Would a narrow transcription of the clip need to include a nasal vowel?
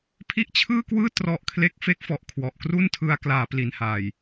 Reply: no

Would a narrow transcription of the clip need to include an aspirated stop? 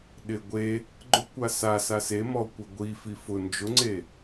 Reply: no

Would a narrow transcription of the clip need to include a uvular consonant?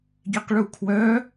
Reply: yes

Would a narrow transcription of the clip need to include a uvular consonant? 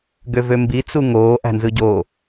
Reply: no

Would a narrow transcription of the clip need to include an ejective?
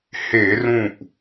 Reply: no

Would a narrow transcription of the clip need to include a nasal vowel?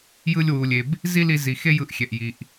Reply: no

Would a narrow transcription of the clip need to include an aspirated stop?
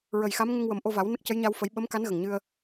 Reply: no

